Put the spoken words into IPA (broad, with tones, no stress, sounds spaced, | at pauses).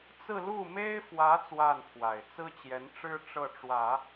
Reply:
t͡s ɹ̩˥˧ l u˥˩ m e˥ ɪ̯ f w ä˧˥ t͡s w a˥˩ n pʰ w a˨˩ ɪ̯ t͡s ɹ̩˥ t͡ɕ j ɛ˧˥ n ʈ͡ʂ ɻ̩˥ ʈ͡ʂ ɤ˥˩ ʈ͡ʂ w ä˨˩˦